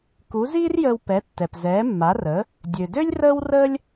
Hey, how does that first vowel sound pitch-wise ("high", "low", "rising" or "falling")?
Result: rising